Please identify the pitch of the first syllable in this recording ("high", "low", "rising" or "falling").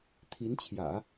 rising